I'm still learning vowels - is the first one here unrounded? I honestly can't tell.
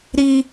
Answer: yes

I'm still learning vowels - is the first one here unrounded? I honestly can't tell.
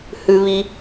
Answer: no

